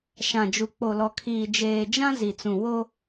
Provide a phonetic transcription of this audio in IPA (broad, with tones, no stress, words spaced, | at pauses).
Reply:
ʃã˨d͡ʒu˨ k͡po˨lɔ˨kʰiː˨ d͡ʒeː˨d͡ʒã˦ zi˨t͡sũ˨ wo˦